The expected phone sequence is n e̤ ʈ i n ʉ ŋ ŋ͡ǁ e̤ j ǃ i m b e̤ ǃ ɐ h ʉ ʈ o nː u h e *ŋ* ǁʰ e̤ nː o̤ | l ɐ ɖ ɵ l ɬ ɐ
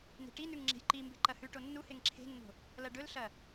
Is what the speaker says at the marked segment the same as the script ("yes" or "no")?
yes